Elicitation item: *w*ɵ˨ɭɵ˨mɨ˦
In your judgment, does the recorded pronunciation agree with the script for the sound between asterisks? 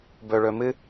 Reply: no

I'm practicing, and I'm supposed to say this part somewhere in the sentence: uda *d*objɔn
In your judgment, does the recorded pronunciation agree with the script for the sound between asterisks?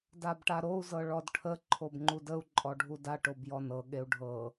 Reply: no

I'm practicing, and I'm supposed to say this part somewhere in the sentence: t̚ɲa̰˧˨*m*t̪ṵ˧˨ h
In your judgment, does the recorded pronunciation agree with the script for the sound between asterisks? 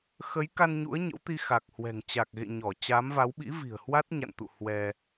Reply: no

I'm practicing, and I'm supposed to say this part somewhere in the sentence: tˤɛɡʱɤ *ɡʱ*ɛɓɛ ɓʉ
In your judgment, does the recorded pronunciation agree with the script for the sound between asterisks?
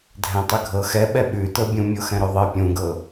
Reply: no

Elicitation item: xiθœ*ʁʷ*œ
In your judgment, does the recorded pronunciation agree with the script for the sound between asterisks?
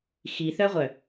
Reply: yes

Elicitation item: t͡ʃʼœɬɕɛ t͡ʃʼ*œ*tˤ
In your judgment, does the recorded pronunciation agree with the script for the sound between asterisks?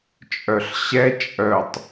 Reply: yes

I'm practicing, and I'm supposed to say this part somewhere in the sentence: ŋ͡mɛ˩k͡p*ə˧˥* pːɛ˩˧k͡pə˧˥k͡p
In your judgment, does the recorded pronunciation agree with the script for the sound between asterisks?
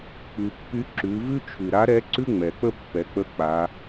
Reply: no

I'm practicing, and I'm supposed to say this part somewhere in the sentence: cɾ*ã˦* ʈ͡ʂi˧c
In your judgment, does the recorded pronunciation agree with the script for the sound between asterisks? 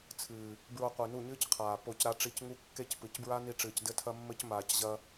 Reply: no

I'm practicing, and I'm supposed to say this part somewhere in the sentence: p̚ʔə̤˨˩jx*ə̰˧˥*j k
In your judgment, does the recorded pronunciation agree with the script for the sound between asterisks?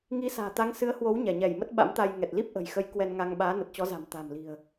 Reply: no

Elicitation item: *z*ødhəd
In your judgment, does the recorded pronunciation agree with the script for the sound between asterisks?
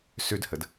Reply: no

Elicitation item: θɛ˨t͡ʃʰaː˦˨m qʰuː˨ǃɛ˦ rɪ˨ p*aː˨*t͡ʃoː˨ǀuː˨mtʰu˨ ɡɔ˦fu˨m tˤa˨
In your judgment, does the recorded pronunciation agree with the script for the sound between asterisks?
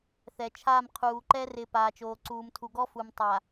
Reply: yes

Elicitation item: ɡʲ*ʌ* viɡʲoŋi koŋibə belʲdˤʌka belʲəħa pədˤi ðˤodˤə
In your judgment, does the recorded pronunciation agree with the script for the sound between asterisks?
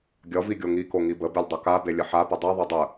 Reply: yes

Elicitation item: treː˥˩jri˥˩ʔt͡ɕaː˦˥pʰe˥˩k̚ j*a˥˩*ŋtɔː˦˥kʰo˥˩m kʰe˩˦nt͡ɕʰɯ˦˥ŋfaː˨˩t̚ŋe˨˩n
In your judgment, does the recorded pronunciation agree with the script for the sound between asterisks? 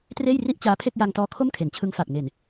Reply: no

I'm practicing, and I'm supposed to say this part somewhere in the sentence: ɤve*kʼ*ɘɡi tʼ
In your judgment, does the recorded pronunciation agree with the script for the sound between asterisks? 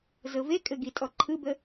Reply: yes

